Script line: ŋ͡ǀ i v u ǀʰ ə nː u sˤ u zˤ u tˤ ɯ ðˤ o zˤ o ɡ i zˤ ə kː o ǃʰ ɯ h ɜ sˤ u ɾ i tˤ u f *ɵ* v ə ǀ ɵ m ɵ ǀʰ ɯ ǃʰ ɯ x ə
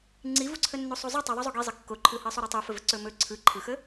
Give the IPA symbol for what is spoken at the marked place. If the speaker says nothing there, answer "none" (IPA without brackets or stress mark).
ə